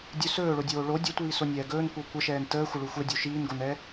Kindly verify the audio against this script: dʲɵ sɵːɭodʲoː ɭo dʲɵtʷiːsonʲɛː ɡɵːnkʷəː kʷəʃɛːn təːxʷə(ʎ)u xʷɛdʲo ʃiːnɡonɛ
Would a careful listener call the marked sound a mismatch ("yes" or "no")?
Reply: yes